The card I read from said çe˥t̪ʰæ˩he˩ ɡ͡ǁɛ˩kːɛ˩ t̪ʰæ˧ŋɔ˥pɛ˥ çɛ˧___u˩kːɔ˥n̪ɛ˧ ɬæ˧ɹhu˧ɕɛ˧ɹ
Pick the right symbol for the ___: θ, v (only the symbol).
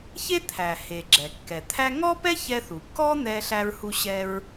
θ